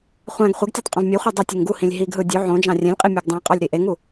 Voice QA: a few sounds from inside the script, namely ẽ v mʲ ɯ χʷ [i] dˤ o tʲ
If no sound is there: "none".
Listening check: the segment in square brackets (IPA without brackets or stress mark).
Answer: i